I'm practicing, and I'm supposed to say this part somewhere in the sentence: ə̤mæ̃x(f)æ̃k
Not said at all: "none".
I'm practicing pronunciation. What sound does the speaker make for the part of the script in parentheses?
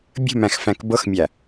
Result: f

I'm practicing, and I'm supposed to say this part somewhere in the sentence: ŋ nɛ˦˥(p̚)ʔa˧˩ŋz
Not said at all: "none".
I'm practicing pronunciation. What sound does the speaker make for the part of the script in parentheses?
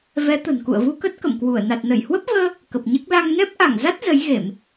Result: p̚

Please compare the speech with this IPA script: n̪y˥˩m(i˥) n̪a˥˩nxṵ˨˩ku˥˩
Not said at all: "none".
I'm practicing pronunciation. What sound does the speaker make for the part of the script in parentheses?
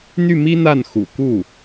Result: i˥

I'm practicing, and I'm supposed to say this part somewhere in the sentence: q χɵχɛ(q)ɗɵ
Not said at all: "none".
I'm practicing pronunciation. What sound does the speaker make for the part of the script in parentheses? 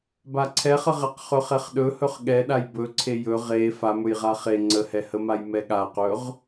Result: χ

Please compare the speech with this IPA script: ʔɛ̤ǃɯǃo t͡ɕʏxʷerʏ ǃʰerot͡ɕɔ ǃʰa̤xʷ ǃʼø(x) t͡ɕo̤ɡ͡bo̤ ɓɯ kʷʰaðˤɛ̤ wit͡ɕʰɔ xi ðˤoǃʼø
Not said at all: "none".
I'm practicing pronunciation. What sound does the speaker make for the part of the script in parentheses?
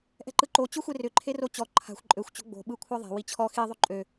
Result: xʷ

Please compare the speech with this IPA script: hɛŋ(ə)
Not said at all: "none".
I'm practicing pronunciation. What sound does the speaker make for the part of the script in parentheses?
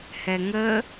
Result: ə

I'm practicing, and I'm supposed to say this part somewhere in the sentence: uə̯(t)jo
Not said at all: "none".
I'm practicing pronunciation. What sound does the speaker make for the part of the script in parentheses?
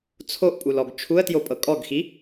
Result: t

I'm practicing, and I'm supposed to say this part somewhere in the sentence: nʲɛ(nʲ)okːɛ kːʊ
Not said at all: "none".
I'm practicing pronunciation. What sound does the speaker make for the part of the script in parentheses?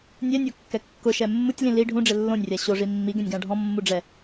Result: nʲ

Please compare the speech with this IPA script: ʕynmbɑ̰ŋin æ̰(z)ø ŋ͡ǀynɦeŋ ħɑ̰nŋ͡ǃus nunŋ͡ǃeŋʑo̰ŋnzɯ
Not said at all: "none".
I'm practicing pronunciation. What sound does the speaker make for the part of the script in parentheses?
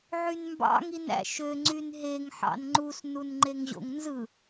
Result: ʃ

